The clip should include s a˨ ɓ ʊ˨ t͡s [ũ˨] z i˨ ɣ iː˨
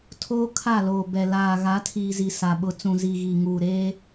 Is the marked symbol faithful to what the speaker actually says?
yes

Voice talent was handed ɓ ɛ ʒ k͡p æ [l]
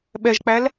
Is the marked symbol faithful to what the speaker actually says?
yes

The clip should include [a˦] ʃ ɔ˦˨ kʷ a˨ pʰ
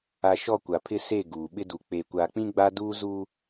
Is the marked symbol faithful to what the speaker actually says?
no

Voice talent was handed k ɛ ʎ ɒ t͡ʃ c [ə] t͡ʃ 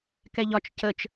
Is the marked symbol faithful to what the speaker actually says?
yes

